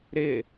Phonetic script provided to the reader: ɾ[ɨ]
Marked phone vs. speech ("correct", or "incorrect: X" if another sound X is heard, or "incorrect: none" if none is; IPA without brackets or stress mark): incorrect: ɪ